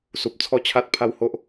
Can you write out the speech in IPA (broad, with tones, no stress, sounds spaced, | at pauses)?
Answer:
s u˨ p̚ t͡sʰ ɔ˦ t͡ɕʰ a˦ t̚ pʰ a˦ w h o˦ ʔ